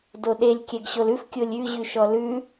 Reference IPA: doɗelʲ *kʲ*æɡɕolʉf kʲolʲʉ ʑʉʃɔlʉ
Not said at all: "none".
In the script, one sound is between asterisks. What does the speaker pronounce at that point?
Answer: kʲ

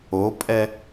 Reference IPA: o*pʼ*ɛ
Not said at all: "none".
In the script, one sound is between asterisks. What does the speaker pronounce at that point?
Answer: pʼ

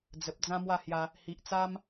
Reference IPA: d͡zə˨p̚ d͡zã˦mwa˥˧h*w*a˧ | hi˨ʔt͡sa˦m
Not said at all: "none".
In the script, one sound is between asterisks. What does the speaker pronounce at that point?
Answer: j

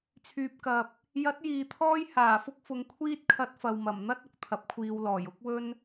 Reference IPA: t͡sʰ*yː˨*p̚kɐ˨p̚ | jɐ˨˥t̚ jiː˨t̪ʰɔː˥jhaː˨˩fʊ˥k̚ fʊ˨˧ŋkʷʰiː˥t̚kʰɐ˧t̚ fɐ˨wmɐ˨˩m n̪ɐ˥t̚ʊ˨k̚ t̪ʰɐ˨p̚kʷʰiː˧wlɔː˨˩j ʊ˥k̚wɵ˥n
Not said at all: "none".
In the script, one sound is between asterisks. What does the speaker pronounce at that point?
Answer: yː˨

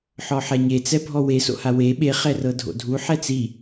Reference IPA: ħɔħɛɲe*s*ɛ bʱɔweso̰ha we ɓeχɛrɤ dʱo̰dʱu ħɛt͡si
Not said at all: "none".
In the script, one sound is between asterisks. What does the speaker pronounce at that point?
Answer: t͡s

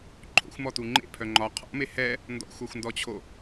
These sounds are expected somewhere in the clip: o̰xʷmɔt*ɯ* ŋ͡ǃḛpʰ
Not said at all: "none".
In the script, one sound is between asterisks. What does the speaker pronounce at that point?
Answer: u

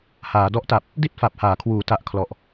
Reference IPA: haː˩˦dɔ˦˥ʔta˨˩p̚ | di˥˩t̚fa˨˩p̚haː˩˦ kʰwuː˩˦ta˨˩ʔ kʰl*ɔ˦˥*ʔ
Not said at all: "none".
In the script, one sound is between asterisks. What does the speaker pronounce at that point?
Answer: ɔ˨˩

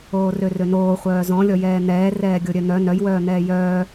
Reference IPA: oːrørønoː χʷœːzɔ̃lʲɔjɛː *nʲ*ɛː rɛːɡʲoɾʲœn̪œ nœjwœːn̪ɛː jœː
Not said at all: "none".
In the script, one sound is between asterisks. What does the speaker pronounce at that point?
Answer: n̪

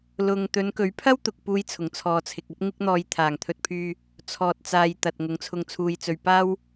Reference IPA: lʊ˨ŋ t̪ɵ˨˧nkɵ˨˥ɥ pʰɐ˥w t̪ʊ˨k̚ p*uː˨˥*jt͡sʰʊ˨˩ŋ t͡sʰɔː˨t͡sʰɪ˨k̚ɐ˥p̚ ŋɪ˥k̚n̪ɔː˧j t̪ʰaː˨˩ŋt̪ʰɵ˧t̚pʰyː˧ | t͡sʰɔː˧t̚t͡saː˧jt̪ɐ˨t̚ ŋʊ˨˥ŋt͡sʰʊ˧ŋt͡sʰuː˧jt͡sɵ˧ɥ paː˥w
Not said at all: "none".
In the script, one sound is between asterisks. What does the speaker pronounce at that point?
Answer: uː˧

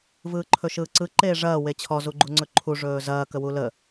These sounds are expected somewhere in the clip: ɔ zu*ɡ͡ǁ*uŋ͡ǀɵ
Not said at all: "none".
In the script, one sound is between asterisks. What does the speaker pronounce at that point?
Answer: ɡ͡ǃ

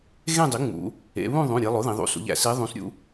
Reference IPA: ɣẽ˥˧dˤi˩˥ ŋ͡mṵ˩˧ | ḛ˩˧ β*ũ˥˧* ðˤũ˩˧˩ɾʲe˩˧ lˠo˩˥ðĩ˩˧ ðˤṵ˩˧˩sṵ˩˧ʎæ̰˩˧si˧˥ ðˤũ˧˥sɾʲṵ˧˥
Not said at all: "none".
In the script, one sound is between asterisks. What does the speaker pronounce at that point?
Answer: ũ˥˧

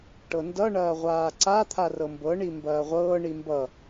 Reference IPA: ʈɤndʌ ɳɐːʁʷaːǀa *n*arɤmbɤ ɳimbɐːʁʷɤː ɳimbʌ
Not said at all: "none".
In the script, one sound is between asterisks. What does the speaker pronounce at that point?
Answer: t̪ʰ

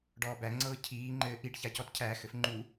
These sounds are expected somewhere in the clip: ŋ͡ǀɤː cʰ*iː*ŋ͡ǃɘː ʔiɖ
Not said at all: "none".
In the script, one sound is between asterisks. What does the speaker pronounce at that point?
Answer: iː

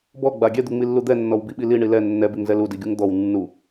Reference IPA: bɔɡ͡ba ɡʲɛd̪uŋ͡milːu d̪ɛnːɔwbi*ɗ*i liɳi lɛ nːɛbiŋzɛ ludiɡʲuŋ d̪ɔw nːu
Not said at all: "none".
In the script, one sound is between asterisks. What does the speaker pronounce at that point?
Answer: ɓ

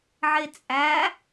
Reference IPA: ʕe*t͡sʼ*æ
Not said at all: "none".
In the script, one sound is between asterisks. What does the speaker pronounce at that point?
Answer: t͡sʼ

